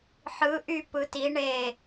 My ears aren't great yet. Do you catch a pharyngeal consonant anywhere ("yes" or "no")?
yes